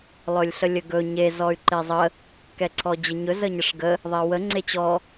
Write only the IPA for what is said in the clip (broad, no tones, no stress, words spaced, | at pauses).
lˠɵlʲɬəlʲəɡɵ ɲe zɔy̯ǃezˤə | kɛǀʰɔd͡ʑəɲɵ zəɲəʂɡə | ðˤewə ŋ͡ǀet͡ɕɔ